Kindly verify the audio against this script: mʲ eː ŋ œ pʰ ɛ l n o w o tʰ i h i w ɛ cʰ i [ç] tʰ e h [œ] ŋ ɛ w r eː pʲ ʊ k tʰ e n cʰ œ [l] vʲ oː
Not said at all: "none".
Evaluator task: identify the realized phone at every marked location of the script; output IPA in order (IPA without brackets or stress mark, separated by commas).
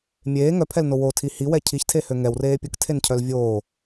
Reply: ç, ø, l